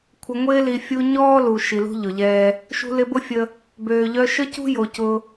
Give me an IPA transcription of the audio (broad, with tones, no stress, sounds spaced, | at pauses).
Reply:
kʷʰ ɪ˨ ŋʷ ɪː˧ l i˨ fʲ u˧ ɲ ɔː˦ l u˨ ʃ i˨ l ṳ˦ ʎ ʊ˨ ʎ ɛː˦ | ʃ ṳ˨ l ɪ˨ b ʊ˧ fʲ ə˦ | b øː˨ ʎ œ˧ ʃ ə˦ c ṳ˦ j o˨ c ʊ˧